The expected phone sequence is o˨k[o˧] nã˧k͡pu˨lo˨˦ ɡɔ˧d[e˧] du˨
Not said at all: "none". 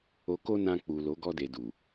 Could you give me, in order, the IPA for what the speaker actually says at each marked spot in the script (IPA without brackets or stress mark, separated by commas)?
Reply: o˧, e˨